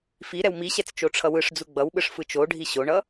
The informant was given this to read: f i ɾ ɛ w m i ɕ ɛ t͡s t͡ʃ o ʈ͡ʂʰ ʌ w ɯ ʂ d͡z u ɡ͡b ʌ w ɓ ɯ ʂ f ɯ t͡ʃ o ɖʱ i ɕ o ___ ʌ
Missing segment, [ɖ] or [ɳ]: ɳ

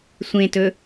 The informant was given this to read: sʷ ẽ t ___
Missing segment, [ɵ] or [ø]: ɵ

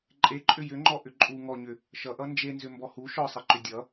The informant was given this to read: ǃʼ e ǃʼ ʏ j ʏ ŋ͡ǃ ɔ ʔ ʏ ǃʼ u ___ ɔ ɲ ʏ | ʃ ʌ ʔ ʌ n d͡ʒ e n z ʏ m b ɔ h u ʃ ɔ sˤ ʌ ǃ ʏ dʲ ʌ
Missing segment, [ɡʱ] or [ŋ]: ŋ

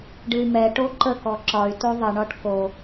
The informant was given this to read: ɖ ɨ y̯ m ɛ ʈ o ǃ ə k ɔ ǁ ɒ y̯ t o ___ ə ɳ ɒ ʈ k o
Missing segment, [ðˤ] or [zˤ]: ðˤ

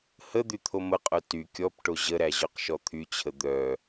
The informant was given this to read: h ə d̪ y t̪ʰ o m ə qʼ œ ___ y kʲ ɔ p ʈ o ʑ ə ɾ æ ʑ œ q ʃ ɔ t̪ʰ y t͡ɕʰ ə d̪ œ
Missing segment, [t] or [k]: t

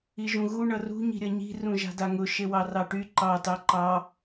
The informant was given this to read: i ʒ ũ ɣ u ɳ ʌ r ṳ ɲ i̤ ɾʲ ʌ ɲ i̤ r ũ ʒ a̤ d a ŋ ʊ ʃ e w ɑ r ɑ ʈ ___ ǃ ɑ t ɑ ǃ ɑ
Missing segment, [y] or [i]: y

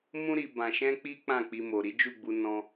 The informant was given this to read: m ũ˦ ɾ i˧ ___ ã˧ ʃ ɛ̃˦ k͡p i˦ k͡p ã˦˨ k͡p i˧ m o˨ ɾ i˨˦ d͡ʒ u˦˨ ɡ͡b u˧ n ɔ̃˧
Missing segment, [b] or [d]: b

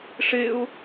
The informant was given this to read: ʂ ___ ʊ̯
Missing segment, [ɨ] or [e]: e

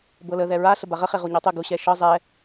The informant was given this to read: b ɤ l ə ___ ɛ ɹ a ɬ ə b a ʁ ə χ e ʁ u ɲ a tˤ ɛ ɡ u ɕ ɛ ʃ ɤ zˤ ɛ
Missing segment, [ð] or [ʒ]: ð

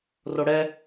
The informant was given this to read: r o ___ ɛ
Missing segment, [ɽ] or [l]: ɽ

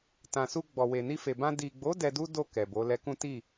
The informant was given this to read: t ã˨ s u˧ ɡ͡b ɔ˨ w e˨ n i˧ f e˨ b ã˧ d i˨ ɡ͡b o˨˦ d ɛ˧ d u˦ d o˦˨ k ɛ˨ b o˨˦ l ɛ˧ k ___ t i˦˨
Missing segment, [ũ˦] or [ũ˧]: ũ˦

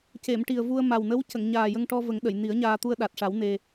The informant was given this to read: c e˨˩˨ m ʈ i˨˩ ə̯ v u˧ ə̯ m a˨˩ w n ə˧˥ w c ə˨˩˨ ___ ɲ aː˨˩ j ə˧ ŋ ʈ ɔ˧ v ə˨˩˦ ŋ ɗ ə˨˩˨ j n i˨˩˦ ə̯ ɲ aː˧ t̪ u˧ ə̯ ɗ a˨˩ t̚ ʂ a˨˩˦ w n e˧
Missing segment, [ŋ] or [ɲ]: ŋ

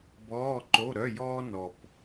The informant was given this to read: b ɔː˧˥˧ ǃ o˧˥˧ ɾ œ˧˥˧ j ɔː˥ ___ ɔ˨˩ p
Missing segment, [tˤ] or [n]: n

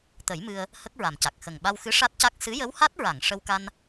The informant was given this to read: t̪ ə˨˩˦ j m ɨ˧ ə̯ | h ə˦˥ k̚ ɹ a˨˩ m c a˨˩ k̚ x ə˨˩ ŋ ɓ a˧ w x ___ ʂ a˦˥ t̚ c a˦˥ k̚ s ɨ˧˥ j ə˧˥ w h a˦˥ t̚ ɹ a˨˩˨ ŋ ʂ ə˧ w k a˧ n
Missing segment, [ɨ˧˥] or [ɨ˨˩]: ɨ˧˥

